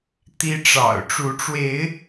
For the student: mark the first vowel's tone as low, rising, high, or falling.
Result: high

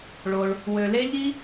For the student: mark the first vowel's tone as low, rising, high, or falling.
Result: low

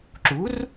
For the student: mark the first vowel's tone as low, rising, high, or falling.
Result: rising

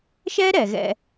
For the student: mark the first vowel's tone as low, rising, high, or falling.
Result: high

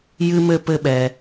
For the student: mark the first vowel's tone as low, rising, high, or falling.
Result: high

